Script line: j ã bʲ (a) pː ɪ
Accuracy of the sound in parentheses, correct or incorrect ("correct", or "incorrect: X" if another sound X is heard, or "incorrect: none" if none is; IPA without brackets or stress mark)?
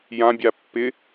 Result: correct